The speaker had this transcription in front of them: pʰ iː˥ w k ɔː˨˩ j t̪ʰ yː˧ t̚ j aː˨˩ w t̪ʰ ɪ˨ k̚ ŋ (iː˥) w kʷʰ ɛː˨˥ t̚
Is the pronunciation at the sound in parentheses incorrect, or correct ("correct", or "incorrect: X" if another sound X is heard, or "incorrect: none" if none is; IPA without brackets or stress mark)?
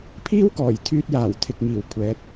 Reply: incorrect: iː˨˩